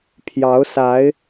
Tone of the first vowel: rising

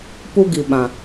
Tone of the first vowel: high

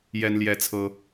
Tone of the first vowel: high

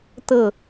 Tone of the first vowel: falling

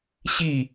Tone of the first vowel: falling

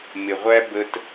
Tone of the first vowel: low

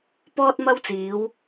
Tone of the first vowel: high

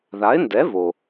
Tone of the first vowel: rising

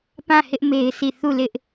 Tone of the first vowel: falling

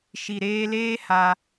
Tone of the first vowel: low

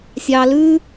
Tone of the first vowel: low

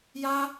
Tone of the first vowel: high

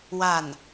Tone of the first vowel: falling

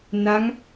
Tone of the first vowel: rising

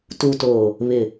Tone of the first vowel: low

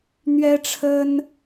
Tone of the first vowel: high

